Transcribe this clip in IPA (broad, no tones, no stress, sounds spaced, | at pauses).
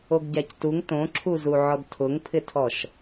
o ɡ ɟ a c t u ŋ t õ ǁʰ u z u ʕ ɔ d tʰ ʊ ŋ pʰ ɪ tʰ ɔ ʃ